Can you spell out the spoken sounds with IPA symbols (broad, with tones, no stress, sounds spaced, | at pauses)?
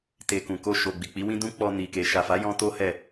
t e˨ k ũ˨ k o˧ ʃ o˨ ɡ͡b i˨ k͡p i˨˦ w ĩ˦ d ũ˧ k͡p ɔ˧ n i˨ k e˨ ʃ a˨ f a˨˦ j ɔ̃˧ t o˦ h ɛ˦˨